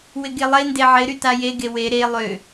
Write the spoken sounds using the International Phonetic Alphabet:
wɪɡelˠende ʕɪɾy tajeɡe we ɾe lˠø

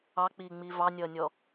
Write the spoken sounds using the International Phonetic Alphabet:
ɑk͡piːŋ͡miː vɑnʲʌːnʲɔ

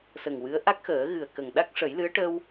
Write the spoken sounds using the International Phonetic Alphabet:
sə˨˩ŋ wɨ˧˥ə̯ ʔa˦˥k̚xəː˨˩˦ ɣɨ˨˩ə̯kə˨˩ŋɗa˦˥k̚ ʂə˨˩˦jlɨ˧˥ə̯ ʈə˧w

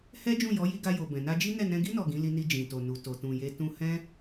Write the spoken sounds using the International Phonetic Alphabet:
hɛ˦d͡ʒũ˦˨jɔ˨˦ ji˧ɡa˧jo˨ bɛ̃˨na˧d͡ʒi˦ nɛ˦˨nɛ̃˧ɡi˦ nɔ˦˨ɡĩ˨˦ li˧ni˧ d͡ʒĩ˨to˨nu˨ to˨tũ˨je˧ tũ˧hɛ̃˦

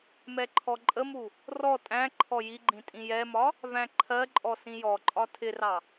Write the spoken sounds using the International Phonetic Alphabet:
mɛǃʰɔǃʼəmu | rɔ tʼæ̃ ǃʰɔjiɡ͡ǃĩ tʼĩjɛmɒ | væ̃ǃʰɜǃʼɔ sĩjɔǃʼɒ tʰɪrɑ

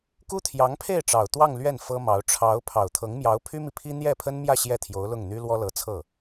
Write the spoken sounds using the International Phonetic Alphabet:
ku˥t̪ʰjɑ˧˥ŋpʰe˥˩ɪ̯ʈ͡ʂɑ˨˩ʊ̯ t̪wɑ˥˧ŋ lɥɛ˥˩n fɤ˥mɑ˧˥ʊ̯ ʈ͡ʂʰɑ˧˥ʊ̯ pʰɑ˨˩ʊ̯t̪ʰɤ˧˥ŋmjɑ˧˥ʊ̯ pʰy˥mi˨pʰi˥ n̪jɛ˥˩pʰə˥nmjä˥˧ ɕjɛ˥˩t̪ʰjo˧˥ʊ̯ lʊ˥˩ŋn̪y˥ lwɔ˥lɤ˧˥t͡sʰɤ˥˩

